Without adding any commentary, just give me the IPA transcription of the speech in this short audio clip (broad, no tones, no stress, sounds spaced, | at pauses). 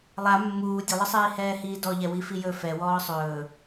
lˠ a mː uː dʲ ə lˠ ə sˤ iː h ɛː h iː d ɔ ʎ ɛ w i f i j ɵ f ɛ w ɔː sˤ ɵː